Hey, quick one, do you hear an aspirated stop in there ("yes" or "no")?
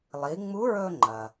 no